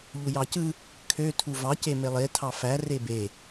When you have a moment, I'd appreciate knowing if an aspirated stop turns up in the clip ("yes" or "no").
yes